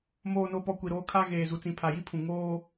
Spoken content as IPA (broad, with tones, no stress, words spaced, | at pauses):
moː˨no˨pɔ˨ kʷi˨ɾoː˦ kʰa˦ ɣeː˨zu˨t͡sĩ˨ pʰa˨ji˦pʰũ˨ ŋoː˦